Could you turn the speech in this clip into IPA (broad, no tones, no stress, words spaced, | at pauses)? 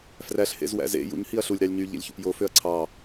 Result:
fræɬ hḛzwæ̰zḛ jṵɲ hiɐ̯ɬulʲ ɾɑlʲɲy ʎḛlʲçṵpjo føɐ̯ǀʰɑ